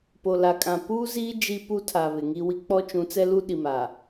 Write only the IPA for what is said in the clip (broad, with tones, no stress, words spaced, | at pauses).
po˨la˨kʼã˨ puː˦ziː˦ d͡ʒi˦pu˦tʰa˨ βɪ˨ŋi˦wi˦ k͡pɔ˦t͡ʃũ˨˦t͡sɛ˦lu˦ ɗi˨maː˨